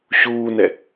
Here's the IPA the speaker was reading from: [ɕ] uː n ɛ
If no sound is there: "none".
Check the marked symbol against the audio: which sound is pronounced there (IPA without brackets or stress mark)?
ɕ